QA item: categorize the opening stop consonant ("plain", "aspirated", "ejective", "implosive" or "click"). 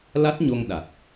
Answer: plain